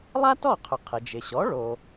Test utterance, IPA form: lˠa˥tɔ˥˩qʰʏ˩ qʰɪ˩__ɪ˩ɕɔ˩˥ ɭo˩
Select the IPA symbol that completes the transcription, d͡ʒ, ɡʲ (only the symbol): d͡ʒ